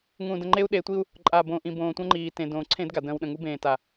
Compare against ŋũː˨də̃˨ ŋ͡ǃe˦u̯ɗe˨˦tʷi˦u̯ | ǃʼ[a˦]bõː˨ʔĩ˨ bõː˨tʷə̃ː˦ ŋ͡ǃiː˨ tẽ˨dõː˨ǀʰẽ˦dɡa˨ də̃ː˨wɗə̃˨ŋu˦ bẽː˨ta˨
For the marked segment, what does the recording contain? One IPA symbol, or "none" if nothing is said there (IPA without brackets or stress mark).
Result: a˨